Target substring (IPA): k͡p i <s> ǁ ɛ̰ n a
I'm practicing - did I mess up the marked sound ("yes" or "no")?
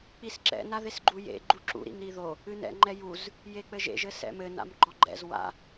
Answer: no